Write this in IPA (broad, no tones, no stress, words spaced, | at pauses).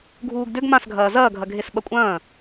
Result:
ɡʱuːɡdʏɡ mãsɡʱɐː zɐːɡʱɐɡʱes ɓɐkʷʼɐ̃ː